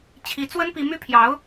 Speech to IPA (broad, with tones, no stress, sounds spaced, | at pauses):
t͡ɕʰ i˧˥ t͡s w ə˥ n p i˥ m y˥ pʰ j ɑ˧˥ ʊ̯